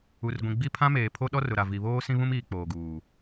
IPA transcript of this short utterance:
u˨ r ɡʷ ĩ˨ ɡ͡b i˦˨ pʰ ã˦ m eː˨ pʰ o˦ ɗ ɔ˦ r ʊ˨ ɾ a˨ v i˨ β oː˦ s ĩ˦ β ũ˦ m iː˨ k͡p oː˨ ɡ uː˨

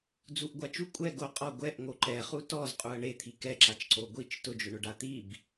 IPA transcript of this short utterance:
d͡z u ʔ ɡʷ a t͡ʃ u kʷʼ ɛ ɡ o qʼ ɔ ɡʷ ɛ ʔ ŋ o ǃ ɛ χ u t ɔ z qʼ u ɐ̯ ɳ e t̪ʰ i k ɛ ǁ a t͡ʃ ǀ o ɡʷ i t͡ʃ t ʊ d͡ʒ ʊ ɳ ʊ ɖ a t̪ i b

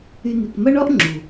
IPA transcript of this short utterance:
y˧ n̪ y˨ k m ɐ˦ ɳ ɔ˦ ʔ ŋ͡ǁ u˨

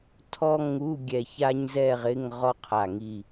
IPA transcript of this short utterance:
tʰ ɔ˥ ŋ u˧˥˧ ɡʲ ɛ˧˩ ç a˥ ɲ z ɛ˥˧ ʁ ɪ˧˥˧ ŋ ʁ ɔ˥ qʰ a˧˩ ŋ i˧˩

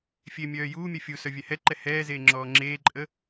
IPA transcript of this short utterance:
fʲ e mʲ œː j uː mʲ ɛ fʲ u s œ vʲ ɛ h ɛ ǃ ɛ h ɛː z eː ŋ͡ǁ ɔː ŋ͡ǁ eː ǃʼ ə

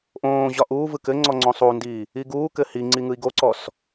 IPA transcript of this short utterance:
ʔ õː ʑ ɒ ʔ uː v ɯ k ɘ ŋ͡ǀ ɔ ŋ͡ǀ õ sˤ u n d iː | i ɡ uː k ɘ h i ŋ͡ǀ i ŋ ɯ i̯ ɡ o ǀ ɔ s

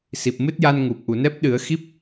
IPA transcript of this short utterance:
s i˨˩ p̚ m ɨ˦˥ t̚ j a˧ n ŋ u˨˩ p̚ ʔ u˨˩˨ n ɛ˦˥ p̚ ɗ ɨ˨˩˦ ə̯ x i˦˥ p̚

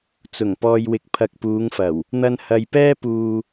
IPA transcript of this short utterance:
t͡s ʊ˨˩ ŋ p ɔː˨ j w ɪ˨ k̚ pʰ ɐ˨ k̚ p uː˨˧ ŋ f ɐ˨˩ w | n̪ ɐ˧ n h ɐ˨ j p ɛː˥ p uː˧

